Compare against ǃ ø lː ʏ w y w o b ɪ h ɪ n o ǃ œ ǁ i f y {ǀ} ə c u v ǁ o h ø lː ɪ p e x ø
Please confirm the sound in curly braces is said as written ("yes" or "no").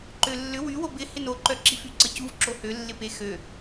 yes